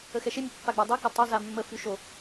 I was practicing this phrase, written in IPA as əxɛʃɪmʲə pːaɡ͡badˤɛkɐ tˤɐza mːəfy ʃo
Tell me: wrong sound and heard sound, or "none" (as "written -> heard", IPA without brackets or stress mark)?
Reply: none